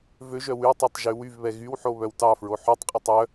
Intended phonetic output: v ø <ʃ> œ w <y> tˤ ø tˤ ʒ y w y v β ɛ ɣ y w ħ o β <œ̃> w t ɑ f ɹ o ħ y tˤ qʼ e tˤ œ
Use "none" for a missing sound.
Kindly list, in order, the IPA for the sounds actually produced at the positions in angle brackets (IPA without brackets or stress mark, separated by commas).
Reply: ʒ, y, œ